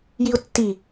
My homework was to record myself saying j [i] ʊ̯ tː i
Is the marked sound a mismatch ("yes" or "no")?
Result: no